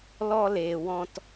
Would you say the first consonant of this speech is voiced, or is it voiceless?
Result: voiced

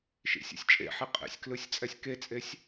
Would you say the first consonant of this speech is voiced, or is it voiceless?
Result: voiceless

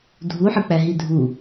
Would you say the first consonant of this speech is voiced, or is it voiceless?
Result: voiced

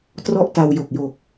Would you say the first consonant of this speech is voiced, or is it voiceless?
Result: voiceless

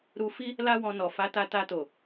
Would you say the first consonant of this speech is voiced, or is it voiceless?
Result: voiced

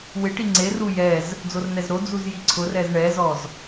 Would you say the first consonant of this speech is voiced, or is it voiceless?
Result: voiced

